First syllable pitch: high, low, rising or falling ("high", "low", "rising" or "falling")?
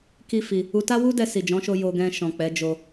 high